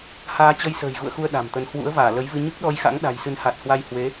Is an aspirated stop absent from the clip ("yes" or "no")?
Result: yes